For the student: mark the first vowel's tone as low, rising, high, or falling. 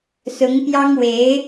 rising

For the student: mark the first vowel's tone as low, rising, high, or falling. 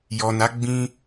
low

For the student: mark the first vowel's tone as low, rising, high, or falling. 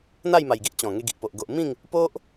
falling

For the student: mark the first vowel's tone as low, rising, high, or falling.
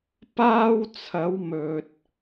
high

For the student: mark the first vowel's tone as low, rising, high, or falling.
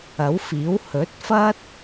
rising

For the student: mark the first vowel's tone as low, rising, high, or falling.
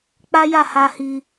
high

